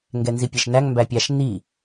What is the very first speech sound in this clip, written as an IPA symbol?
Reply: ŋ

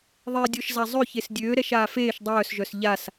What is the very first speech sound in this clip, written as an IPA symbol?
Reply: ðˤ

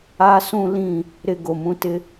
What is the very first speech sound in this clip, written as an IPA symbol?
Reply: aː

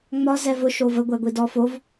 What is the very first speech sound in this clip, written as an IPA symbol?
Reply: ŋ͡m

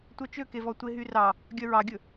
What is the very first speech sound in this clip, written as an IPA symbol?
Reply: tʷ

